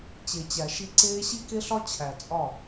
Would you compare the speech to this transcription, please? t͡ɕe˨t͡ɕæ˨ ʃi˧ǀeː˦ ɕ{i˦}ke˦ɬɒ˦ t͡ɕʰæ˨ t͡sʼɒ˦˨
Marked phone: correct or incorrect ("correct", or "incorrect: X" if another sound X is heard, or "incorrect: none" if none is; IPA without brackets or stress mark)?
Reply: correct